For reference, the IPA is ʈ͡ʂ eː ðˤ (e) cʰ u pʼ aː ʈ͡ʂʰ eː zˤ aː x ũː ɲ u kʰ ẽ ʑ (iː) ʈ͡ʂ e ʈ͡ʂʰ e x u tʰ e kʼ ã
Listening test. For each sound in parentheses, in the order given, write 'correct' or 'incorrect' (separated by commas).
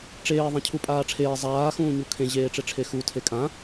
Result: incorrect, incorrect